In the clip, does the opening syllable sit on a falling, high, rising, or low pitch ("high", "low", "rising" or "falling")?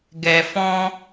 low